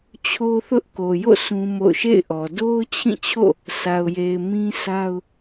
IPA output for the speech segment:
t͡ɕʰ o˦ θ ʊ˦ ʔ k o˨ j o̰˦˨ sʰ ũ˦ m o̰˦˨ ʊ̯ ʃ ḛ˦˨ ɪ̯ ʔ ɔ˨ d o˦ ʊ̯ t͡ɕʰ ĩ˦˨ t͡ɕʰ o̰˦˨ | sʰ a˨ ʊ̯ j e˨ ɪ̯ m ĩ˦ s a˦ ʊ̯

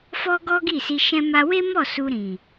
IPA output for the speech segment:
f ɔ˦ ɡ ɔ˦ ɡ i˦˨ s i˧ ʃ ɛ̃˧ m a˧ w e˦ m ɔ˦˨ s u˧ ɾ ĩ˨

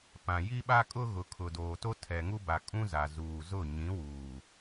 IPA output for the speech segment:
p ã˨ j i˦ ɓ a˦ kʼ ʊ˦ ɣ ʊ˨ kʰ ʊ˨ d oː˨ t o˦ tʰ ɛ˨ ŋ u˦ b a˨ kʼ ũ˦ z a˨ z uː˨ z ʊ˦˨ ɲ ĩ˨˦ w uː˨

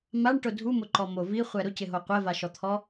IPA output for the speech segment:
m a ɳ ʈ ʊ dʱ u m ʊ ǃ ɔ m o v i χʷ ɛ ɾ ʊ c ɪ ɦ o qʷ ɛ v a ʃ ɔ t̪ʰ ɔ

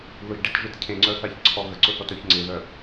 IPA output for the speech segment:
ð ʊ ʒ ɖ e t ʒ e t cʰ ẽ ŋ͡ǀ œ θ a ç ǀʰ ɔ ɣ ə ǀ ʊ θ ɔ t œ ç ŋ͡ǀ ɪ ð œ

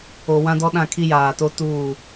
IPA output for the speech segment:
o˨ w ã˦ d ɔ˦ ɗ ã˦˨ kʰ i˦ j aː˨ t o˦ t uː˦˨

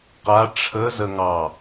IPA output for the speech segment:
q a ʈ͡ʂʰ ə z ə ŋ ɑ

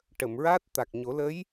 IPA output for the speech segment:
ʈ ə˨˩˨ m ɹ aː˦˥ t̚ t̪ a˨˩ k̚ ɲ o˨˩˦ l ə˧˥ j

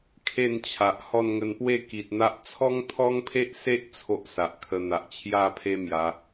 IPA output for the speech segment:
kʰ e˥˧ n t͡ɕʰ a˨ ʔ h ɔ˥˧ n ŋ ə˧ n p w e˥˧ k i˨ t̚ n̪ a˦ ʔ t͡sʰ ɔ˦ ŋ t̪ʰ ɔ˦ ŋ pʰ e˦ ʔ s e˦ ʔ t͡sʰ o˦ ʔ s a˨ ʔ kʰ ə˧ n̪ a˨ ʔ t͡ɕʰ j a˥˧ pʰ e˦ m j a˨˦

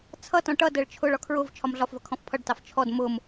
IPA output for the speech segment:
t͡sʰ ʌ t ɔ̃ ʈ ʌ d ɜ ɭ t͡ʃʰ ʊ ɭ ɒ kʰ ɹ ʊ v t͡ʃʰ ɒ m ɮ ɒ f v ʌ kʰ ɔ̃ f pʰ ʌ ɖ t ɑ f t͡ʃʰ ɔ d m ʊ m

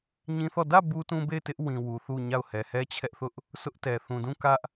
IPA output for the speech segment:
ɲ ĩ˦ θ ɔ˦˨ d ä˦˨ b u˦ t ũ˦ b e˦˨ ɪ̯ t ɪ˦ ʔ w ĩ˨ w u˨ θ u˦˨ ɲ a˦˨ ʊ̯ h ɛ˨ h ɛ˦ t͡ɕʰ ɛ˦ ʔ θ ʊ˦ ʔ | sʰ ʊ˦ ʔ t ɛ˨ θ ũ˨ d ũ˦˨ k ä˦ ʔ

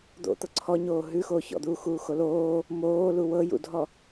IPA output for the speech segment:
d̪ o̰ t̪ ɤ ǀʰ ɔ ɲ oː ɦ ʉ x oː ç ɔ̰ d̪ uː x uː x o l oː | m oː l u w ɤ j ṵ dʱ ɔ

